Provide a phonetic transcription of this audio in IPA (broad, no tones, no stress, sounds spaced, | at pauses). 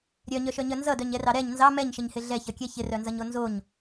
ɾʲ œ ɲ œ ʃ œ ɲ œ n z ʌ d œ ɲ ɛ r ɑ ɾ ɛ ɲ n z ɑ m ɛ ɲ ʃ ɪ ɲ h ɪ ɮ ɛ ç ʌ kʲ ɛ ç ɪ r œ n z ʌ ɲ o n z o ɲ